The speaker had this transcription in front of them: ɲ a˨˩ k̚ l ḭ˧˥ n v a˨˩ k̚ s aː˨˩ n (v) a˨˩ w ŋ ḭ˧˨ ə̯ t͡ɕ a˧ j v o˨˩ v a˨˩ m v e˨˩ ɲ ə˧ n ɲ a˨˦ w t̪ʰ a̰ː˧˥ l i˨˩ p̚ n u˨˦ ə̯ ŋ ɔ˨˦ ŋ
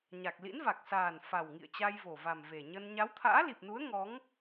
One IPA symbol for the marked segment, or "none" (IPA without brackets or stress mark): f